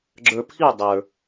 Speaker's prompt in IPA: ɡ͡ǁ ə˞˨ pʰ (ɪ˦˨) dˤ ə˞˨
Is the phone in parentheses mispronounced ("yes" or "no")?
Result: yes